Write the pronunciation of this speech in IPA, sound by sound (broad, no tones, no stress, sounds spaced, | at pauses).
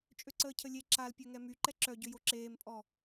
t͡ʃʼ ø ǀ əː cʰ ə lʲ e ǁ a l pʲ ø ŋ ɛ m y ǃ ɛ ǁ œ ɟ ø j o ǁ eː m pʼ ɔ